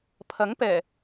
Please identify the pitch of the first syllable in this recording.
rising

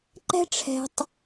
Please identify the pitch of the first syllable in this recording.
high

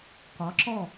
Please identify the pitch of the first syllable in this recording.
rising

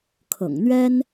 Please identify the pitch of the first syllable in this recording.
low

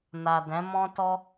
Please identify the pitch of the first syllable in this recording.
low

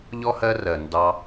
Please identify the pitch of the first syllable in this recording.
high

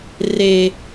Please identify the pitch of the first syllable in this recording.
high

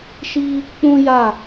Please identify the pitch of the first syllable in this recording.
high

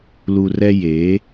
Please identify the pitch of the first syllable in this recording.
low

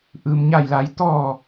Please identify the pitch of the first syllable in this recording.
low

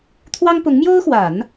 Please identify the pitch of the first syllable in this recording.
high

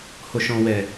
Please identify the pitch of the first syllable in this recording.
low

